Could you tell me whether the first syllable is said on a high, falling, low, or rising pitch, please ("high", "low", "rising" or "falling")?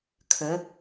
rising